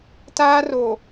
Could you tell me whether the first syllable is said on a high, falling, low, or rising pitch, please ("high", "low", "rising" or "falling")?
high